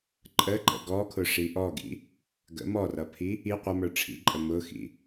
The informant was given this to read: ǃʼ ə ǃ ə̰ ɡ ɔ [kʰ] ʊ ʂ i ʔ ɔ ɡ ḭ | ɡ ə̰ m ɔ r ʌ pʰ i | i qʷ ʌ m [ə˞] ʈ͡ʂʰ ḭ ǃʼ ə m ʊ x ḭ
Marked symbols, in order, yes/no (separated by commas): yes, yes